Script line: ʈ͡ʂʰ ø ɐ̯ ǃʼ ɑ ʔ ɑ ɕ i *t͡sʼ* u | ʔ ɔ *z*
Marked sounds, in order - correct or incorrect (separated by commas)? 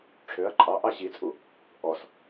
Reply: correct, incorrect